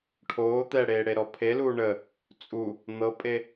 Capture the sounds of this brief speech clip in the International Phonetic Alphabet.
ʈʰ oː t̪ ɛ ɽ eː ɽ e ɾ ɔ pʰ e l uː ɳ ə | t͡sʼ u | n̪ ɤ pʼ e

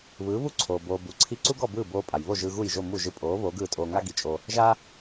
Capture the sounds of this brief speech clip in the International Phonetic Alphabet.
β ɯː˩˥ β u˥ ǀʰ oː˩ b oː˧ b u˩˥ ǀʰ i˥ ǀ u˥ ɡ ɔ˥˩ b ɯː˥˩ b oː˧ pʼ a˩ j β o˥˩ ʒ ɯ˧ ɣ u˥˩ j ʒ o˥˩ m u˥˩ ʒ ɯ˧ pʼ oː˩˥ β oː˩˥ ɡ ɯː˥˩ tʼ oː˧ ŋ a˥ ɡ i˩ t͡ʃʼ o˧ | ʒ a˥

